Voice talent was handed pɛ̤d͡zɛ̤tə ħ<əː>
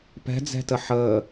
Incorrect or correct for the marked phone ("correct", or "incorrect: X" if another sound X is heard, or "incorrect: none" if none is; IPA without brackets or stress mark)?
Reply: correct